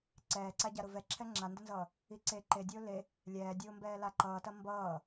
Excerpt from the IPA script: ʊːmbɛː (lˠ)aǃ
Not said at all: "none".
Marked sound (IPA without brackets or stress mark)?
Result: l